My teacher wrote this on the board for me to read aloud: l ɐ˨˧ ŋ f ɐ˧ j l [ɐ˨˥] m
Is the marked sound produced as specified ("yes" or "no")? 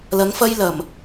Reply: no